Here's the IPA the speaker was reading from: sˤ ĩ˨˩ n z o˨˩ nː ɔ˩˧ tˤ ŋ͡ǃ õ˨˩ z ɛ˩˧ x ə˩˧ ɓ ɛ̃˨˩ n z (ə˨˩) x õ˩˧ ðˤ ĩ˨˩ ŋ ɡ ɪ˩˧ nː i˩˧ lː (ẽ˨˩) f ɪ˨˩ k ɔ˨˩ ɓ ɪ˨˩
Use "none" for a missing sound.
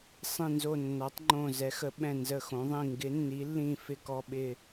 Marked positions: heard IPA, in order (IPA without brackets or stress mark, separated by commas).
ə˨˩, ĩ˨˩